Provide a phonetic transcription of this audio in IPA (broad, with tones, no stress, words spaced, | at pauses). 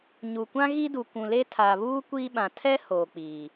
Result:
ɲu˨kʷã˦ɣi˦du˨ kʷũ˨le˦tʰaː˨ βuː˦ kʷiː˦ɓã˨ tʰɛ˦ hoː˨k͡piː˨